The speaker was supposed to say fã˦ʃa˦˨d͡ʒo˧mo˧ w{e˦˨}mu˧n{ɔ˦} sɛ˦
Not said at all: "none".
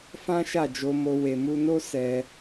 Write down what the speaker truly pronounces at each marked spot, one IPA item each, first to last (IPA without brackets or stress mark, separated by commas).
e˨, o˦